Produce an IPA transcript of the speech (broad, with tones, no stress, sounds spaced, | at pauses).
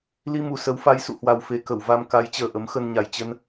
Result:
l i˧ m u˨˩ s ə˨˦ w f a˨˦ j s ṵ˧˨ h w a˨˩ w f e˨˩ k ə˧˩ w v a˧ m k a˨˦ j t͡ɕ əː˨˩ ʔ ə˨˦ m x ə˧ n ɲ a˨˩ j t͡ɕ ə˧ n